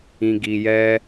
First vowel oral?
no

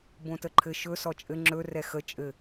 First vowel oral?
no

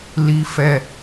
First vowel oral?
yes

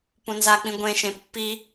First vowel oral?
no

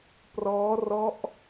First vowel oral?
yes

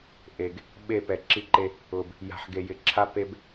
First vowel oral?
yes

